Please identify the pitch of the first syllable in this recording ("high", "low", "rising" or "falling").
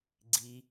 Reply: high